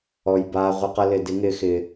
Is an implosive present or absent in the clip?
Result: absent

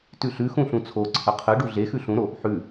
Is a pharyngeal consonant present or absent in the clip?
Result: present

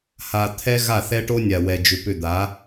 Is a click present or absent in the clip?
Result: absent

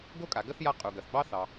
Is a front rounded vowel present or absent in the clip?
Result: absent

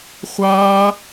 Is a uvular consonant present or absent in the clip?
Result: present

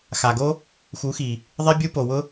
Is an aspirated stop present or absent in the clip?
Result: absent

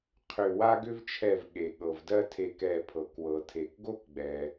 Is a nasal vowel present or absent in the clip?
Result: absent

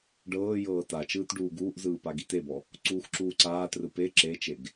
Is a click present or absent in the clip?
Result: present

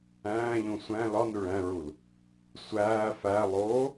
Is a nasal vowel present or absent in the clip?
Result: present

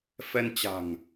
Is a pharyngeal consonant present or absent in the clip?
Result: absent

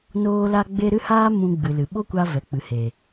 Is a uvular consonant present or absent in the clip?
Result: absent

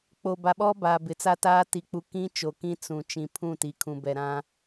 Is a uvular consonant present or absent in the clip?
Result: absent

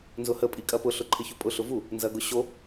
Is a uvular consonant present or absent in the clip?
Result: absent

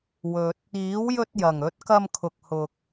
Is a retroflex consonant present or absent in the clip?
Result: absent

